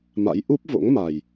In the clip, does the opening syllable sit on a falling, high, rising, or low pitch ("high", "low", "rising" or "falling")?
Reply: rising